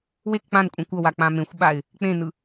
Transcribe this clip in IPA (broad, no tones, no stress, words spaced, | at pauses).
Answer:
wek k͡pãnkʷʼɛ̃ kʷʌwa k͡pãmẽxʷɓaɪ̯ | k͡pẽnɯ